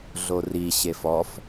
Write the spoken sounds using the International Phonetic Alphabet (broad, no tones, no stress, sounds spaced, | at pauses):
ɮ o r i ɕ e f ɔ f